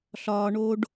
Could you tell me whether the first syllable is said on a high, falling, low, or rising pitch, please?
low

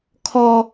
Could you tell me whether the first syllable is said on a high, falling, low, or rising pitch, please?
high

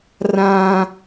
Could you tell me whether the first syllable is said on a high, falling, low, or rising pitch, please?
high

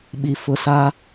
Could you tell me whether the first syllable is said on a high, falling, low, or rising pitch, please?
low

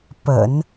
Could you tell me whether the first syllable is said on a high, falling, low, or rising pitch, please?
low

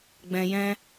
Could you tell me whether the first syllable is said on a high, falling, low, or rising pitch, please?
low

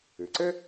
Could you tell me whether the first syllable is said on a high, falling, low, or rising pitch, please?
low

